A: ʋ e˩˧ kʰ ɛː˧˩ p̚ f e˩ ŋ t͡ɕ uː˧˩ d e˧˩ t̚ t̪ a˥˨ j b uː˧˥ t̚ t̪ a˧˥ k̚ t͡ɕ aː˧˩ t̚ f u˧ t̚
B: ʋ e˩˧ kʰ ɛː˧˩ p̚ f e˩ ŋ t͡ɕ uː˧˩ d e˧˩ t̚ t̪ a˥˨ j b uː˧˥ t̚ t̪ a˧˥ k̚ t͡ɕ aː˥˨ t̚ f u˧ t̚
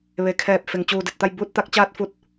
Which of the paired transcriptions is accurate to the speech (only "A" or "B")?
B